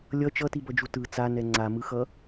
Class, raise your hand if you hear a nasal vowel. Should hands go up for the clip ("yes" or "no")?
no